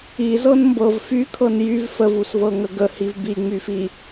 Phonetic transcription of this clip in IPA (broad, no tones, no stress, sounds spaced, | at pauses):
i z ɤ n m b ɤ v f y kʰ ɤ n j y v f ə v u s v ɤ ŋ ə ɡ ə h i v b i ŋ͡m y f i